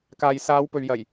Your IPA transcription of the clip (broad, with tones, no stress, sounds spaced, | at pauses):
k aː˨ j s aː˨˧ w p ɵ˨ ɥ j ɐ˨˩ j